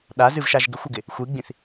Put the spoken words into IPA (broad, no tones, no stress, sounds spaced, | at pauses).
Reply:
ɗ a z ɨ v ʃ a ʒ ɡ ɪ xʷ ʊ ɡ ɪ | xʷ i ɡ͡b ĩ θ